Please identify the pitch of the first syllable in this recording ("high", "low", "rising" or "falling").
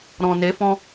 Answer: low